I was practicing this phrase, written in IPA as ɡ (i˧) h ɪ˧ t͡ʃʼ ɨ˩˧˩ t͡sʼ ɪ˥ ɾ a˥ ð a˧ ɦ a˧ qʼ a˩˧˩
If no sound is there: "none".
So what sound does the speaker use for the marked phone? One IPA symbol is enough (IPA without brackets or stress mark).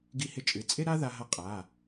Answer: i˧